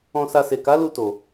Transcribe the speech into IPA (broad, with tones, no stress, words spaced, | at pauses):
ɔ̃˧sa˧ se˨ka˨˦lu˧ to˨